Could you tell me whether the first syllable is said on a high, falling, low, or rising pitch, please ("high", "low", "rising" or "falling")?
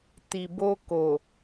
low